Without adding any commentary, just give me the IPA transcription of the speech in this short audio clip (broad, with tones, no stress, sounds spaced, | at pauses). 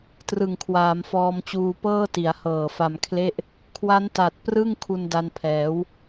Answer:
t r ɯ˨˩ ŋ kʰ w aː˩˦ m f ɔː˧ m t͡ɕ uː˧ p ɤː˥˩ t i˩˦ a̯ h ɤː˨˩ f a˧ m kʰ l e˥˩ ʔ | kʰ w a˦˥ n t a˨˩ t̚ p r ɯ˥˩ ŋ kʰ u˧ n d a˧ n pʰ ɛː˩˦ w